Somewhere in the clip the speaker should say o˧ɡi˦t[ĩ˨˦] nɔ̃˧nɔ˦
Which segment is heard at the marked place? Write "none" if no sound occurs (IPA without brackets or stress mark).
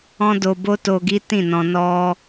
ĩ˦˨